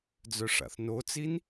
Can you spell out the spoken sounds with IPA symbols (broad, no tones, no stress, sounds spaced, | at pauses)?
d͡z œ ʂ a̰ θ n o t͡s i n